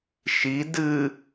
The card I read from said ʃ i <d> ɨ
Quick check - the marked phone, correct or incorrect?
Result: correct